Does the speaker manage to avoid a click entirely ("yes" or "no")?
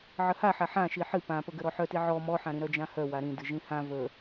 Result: yes